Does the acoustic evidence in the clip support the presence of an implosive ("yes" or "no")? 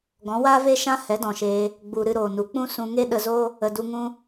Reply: yes